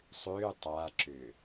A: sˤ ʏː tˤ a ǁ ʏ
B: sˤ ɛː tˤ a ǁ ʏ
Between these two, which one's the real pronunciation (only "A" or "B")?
A